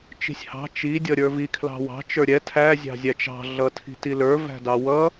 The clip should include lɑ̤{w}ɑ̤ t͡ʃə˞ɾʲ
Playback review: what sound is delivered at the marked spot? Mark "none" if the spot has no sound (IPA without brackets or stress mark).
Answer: w